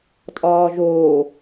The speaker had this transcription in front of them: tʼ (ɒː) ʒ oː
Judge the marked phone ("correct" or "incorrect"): correct